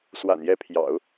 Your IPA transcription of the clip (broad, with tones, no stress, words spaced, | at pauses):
swa̰˨˩njɛ˧˥pʰjɑ̰˨˩˦ʊ̯